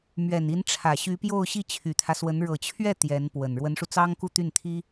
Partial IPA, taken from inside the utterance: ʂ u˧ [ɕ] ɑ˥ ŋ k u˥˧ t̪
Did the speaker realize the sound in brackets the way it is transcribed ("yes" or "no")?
no